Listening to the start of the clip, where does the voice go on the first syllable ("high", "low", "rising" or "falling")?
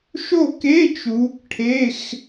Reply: falling